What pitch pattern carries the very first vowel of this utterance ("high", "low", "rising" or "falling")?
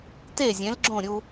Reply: falling